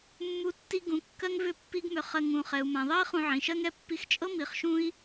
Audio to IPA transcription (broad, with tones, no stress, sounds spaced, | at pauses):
mː u˦ tː i˦ ɡ ũ˨˦ kː ɜ˦ ŋ v ʏ˧ pː i˦ ɡ m ʏ˧ χ ɜ˧ ŋ ũ˨ χ ɛ˨ u̯ m ã˨ ðˤ ɜ˦ i̯ χ ũ˧ ʕ ĩ˨ ʃ ɜ˦ ŋ ɛ˧ pː i˧ x t͡ʃʼ ɤ˦ m i˧ χ ʃ ũ˦ i̯